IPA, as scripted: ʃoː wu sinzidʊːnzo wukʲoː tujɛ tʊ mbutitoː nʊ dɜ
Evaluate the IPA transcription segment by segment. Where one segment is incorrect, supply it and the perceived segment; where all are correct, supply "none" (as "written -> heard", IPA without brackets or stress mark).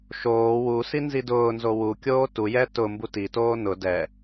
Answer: ɜ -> ɛ